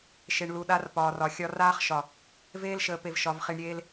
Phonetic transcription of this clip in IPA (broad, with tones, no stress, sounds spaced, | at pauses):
ʃ e˨ ɳ l u˨ ɗ a˦ r p ɒː˨ r ɒ˨ xʲ ɒ˦ r aː˦ χ ʃ ɒ˨ | v eː˦ l ʃ əː˨ p e˨ v ʃ ɒ˨ v χ i˨ ɳ ɾʲ eː˦ l